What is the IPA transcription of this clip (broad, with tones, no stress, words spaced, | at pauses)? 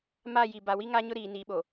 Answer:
ma˦˨ji˨ ba˨wi˦ŋa˦ɲʊ˦ ɾiː˨ni˨˦ɓo˨